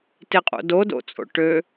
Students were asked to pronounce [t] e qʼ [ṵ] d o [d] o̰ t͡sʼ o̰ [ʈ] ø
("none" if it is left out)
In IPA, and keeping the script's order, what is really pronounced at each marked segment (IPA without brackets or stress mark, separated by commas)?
t, o̰, d, ʈ